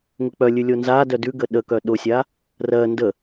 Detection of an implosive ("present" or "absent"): present